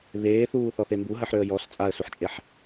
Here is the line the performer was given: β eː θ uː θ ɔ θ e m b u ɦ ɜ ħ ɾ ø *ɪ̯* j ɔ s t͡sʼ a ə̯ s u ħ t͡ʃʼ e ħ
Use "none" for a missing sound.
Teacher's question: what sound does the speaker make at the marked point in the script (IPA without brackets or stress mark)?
ə̯